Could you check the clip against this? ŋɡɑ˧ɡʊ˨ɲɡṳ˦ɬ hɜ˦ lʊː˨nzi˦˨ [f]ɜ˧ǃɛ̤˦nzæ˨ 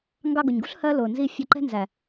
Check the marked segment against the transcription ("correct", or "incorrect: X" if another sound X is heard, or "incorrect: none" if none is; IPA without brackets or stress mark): incorrect: fʲ